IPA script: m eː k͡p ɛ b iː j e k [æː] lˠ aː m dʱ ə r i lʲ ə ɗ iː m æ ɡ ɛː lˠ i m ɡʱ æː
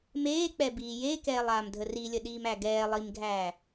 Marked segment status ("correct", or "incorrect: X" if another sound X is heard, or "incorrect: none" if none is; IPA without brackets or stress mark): incorrect: ɛː